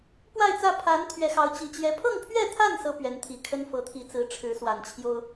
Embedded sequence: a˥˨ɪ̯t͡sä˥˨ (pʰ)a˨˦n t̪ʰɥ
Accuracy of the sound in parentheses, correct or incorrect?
correct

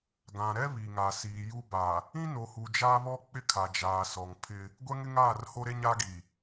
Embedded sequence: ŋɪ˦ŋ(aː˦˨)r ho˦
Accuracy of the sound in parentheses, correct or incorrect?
correct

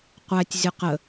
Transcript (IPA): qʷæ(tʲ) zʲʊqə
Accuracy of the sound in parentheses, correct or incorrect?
correct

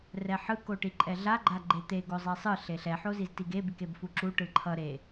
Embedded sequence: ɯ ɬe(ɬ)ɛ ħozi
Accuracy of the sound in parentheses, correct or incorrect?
correct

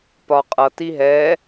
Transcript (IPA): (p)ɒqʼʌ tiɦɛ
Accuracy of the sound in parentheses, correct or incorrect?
correct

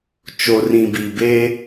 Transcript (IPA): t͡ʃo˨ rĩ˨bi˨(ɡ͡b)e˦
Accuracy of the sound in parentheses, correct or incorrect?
incorrect: b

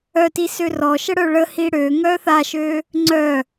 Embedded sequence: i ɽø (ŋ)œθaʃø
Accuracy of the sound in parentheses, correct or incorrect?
correct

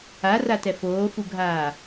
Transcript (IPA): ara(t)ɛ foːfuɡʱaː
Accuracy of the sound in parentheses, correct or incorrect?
correct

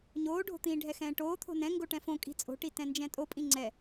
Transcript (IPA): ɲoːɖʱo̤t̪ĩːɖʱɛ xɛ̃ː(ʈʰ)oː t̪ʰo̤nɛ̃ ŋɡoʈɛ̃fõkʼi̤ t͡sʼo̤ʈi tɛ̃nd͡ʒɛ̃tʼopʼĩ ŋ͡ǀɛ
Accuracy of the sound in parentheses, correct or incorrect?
incorrect: ʈ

